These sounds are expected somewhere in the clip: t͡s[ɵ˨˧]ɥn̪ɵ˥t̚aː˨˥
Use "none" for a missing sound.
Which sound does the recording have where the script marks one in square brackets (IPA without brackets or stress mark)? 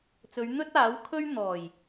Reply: ɵ˨˧